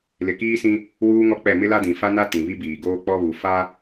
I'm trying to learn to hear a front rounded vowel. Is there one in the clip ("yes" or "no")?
no